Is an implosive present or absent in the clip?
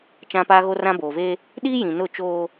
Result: present